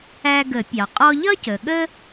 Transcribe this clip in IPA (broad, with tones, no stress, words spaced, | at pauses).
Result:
æ˧ɡə˨˩˦pʲɑ˩ qʼɔ˧ʎʌ˥cə˩ ɠə˥